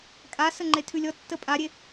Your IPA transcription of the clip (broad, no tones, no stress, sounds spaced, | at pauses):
kʼ a s ə ŋ͡ǃ e tʰ ʉ lʲ ɔ tː ə pʼ a ɾʲ e